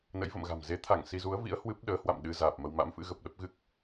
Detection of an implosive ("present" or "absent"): present